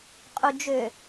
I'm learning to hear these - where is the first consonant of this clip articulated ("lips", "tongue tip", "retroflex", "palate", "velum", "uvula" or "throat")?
uvula